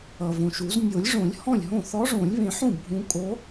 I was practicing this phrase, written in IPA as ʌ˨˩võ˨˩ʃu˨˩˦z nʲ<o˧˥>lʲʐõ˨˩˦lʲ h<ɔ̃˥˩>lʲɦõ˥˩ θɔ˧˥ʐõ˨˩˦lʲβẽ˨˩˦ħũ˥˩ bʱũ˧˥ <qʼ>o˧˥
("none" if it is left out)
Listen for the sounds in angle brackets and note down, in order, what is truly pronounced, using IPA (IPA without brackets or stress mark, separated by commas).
o˨˩˦, ɔ̃˥˩, kʼ